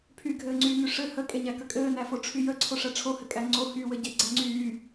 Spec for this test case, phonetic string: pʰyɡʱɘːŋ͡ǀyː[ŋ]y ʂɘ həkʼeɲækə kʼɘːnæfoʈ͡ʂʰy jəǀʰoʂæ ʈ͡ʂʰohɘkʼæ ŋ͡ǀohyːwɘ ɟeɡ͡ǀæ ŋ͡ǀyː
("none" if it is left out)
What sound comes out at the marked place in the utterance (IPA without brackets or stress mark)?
ŋ